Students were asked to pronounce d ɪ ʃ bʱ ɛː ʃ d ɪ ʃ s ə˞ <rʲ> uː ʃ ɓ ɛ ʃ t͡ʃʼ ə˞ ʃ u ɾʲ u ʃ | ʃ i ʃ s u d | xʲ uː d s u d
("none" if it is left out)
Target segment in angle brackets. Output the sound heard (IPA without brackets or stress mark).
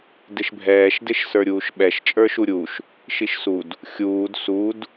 ɾʲ